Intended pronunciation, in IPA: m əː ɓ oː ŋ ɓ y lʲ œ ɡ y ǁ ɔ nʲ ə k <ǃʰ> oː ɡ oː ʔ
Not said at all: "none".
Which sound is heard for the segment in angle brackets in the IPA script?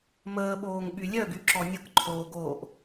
ǃʰ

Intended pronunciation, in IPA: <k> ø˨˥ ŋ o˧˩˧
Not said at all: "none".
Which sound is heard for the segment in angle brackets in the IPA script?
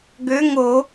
ɡ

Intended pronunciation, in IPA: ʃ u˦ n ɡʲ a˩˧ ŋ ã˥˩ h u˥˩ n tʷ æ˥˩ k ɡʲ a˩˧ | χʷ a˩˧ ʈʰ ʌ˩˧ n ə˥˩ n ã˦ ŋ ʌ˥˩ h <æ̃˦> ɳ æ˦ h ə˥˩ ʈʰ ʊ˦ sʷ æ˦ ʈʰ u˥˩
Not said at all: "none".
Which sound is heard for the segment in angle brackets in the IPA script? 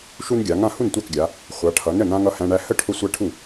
æ̃˦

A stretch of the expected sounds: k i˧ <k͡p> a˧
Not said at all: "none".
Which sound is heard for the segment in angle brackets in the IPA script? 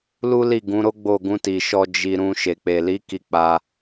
k͡p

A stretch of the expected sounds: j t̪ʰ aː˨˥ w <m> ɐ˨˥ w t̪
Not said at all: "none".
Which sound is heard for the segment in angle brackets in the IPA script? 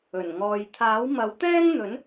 m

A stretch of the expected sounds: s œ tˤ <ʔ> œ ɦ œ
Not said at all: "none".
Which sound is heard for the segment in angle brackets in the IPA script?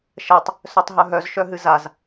ɦ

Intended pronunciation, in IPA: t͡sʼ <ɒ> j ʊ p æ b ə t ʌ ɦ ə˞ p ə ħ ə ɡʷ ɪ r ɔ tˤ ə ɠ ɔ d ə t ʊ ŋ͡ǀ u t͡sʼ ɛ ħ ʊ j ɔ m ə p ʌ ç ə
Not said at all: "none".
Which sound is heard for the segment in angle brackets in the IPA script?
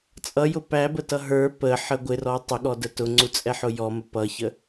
ʌ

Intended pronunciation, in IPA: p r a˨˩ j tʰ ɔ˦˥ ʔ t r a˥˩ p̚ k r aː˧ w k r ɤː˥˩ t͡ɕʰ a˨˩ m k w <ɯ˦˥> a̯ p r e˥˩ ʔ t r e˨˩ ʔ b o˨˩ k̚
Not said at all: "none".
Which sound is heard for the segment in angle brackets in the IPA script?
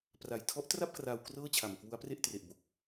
u˦˥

